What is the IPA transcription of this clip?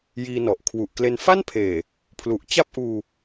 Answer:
j iː˧ n ɔ˨˩ ʔ kʰ w u˨˩ ʔ k l e˧ n f a˥˩ n pʰ eː˨˩ | pʰ l u˨˩ ʔ t͡ɕ a˥˩ p̚ ʔ uː˧

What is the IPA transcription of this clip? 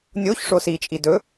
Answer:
nʲ o ç ʂ o s i t͡ʃʼ i d ɵ

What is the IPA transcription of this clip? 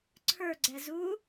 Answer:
ǀʰ ə˞ ɡ͡ǀ ɛ z u

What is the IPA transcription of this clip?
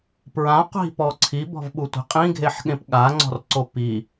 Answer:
p ɹ ã qʷ i̤ p ɔ ǀʰ i b ɔ̤ v ɓ u tʷ i̤ qʼ ĩ ɡʱ e ħ ɠ ẽ p ɠ a ŋ͡ǀ ɔ̤ r ǀ o p i

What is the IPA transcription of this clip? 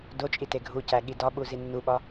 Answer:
d o t͡ʃʼ i t e ɡʱ u c æ ɠ i d ɒ ɓ u z i nː u ɓ ɒ

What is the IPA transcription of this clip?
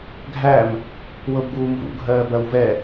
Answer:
ɡʱ æ m | w ɤ b ɡ uː m v ṵ ɡʱ ɜː b ɜ w v ɛ

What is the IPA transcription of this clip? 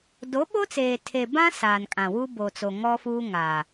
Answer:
d o˨˦ ɓ o˦ t͡s eː˨ tʰ e˨ b ã˦ s aː˨ n kʼ ã˨ w u˦ b o˨ t͡s o˨ ŋ ɔ˦ f uː˦ ŋ a˨

